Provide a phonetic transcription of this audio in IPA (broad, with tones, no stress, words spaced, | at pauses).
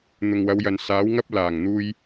n̪ʊ˨ŋwɐ˨˧wjɐ˨n saː˨˥wŋɐ˥p̚ laː˨˩ŋn̪uː˧j